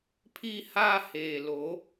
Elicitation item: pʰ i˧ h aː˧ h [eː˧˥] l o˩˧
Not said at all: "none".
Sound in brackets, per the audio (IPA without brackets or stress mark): eː˩